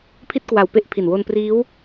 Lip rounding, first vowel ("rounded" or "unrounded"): unrounded